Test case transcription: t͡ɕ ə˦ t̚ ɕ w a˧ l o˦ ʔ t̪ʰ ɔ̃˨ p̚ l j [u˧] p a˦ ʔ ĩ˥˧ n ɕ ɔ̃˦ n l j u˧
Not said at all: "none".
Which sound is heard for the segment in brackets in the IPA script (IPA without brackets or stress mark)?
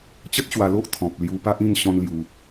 u˧